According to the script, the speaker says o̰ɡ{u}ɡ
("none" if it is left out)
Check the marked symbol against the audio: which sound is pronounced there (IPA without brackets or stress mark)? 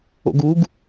u